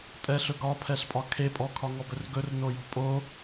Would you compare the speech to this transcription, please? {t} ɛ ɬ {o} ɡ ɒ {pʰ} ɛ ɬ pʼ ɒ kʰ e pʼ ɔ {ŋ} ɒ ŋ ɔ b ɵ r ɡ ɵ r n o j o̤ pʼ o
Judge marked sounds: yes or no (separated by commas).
no, no, yes, no